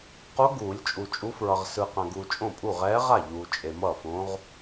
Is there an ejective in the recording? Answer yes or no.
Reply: yes